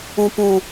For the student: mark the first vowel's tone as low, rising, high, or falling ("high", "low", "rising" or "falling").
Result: low